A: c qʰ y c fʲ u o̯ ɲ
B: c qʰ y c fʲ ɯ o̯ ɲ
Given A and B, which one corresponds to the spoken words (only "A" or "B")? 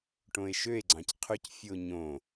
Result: B